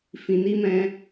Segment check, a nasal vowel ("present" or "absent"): present